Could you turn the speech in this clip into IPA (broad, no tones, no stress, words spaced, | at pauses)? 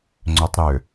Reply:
ŋ͡ǀʏtˤ ɾʏ